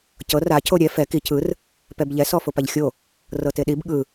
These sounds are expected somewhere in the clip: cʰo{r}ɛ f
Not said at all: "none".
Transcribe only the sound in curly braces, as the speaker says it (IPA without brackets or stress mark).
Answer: ɾʲ